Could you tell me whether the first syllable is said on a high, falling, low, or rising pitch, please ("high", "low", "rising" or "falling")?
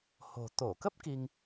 low